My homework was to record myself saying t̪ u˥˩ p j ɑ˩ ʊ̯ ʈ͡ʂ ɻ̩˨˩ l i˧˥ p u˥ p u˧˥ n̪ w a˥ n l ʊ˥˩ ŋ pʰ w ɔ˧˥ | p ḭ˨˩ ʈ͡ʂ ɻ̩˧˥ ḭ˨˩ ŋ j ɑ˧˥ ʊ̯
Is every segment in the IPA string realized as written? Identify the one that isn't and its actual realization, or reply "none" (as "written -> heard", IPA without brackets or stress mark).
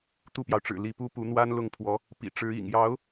none